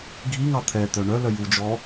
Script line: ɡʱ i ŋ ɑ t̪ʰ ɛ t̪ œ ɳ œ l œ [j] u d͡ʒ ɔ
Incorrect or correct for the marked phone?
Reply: correct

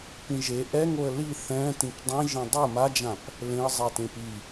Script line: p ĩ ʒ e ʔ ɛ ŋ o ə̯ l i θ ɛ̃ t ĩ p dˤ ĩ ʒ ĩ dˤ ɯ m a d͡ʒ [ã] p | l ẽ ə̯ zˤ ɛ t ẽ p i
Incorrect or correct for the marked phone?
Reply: correct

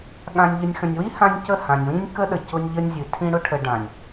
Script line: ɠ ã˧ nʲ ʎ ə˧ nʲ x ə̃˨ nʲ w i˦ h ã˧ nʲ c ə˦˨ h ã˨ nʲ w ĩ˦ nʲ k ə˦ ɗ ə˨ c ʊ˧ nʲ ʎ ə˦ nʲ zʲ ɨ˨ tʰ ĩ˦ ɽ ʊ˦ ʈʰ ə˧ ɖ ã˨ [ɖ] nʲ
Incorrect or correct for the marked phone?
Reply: incorrect: none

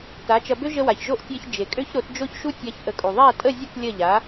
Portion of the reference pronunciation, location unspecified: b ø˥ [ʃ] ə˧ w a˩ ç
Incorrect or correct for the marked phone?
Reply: incorrect: ʒ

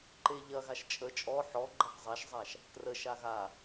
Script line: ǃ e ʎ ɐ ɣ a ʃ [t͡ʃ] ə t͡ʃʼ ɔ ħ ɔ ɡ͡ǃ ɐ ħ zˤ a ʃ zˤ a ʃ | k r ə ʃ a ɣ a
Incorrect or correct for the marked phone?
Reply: incorrect: t͡ʃʼ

